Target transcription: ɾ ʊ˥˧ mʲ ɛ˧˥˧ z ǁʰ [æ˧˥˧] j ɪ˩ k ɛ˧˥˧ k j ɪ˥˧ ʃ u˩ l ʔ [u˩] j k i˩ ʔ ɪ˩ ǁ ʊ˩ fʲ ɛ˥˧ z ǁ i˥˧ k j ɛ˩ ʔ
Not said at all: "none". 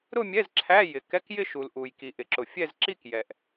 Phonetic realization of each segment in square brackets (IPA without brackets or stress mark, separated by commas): æ˧˥˧, u˩